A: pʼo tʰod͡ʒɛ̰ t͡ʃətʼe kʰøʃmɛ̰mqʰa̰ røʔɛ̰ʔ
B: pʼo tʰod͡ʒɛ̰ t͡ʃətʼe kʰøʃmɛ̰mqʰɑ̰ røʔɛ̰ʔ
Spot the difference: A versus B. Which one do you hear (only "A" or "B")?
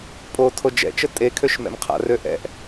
A